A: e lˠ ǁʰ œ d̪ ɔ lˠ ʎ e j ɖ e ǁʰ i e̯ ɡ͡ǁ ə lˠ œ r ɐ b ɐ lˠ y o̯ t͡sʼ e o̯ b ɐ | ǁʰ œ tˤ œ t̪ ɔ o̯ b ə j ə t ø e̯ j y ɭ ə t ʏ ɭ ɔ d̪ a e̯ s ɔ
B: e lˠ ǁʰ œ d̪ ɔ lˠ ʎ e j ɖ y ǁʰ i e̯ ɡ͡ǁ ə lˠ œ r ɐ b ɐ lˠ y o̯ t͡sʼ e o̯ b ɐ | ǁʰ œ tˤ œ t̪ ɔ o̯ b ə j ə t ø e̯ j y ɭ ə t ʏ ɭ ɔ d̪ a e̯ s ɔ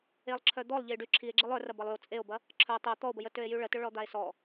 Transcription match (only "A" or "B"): B